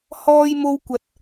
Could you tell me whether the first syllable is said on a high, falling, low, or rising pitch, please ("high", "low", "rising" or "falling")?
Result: high